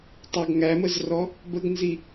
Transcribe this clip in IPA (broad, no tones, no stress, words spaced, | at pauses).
tˤɑɡŋæməzrɔ | bəɡnzi